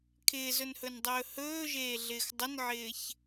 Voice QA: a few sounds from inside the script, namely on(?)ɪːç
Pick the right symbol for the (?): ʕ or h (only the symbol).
ʕ